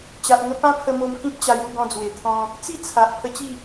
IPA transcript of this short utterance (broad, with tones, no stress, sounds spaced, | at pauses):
t͡ɕ a˨ ʔ ŋ ə˧ p ã˦ pʰ ə˧ m o˧ m k ĩ˦ p̚ t͡ɕ a˧ j u˥˧ ɡ ɔ̃˧ d͡z w e˨˩ t̪ʰ ɔ̃˧ | t͡s i˥˧ t͡sʰ a˨ ʔ pʰ ə˧ t͡ɕ i˥˧